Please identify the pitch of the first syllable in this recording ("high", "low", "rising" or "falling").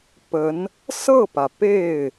rising